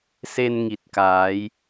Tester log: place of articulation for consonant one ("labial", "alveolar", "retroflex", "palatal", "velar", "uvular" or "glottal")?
alveolar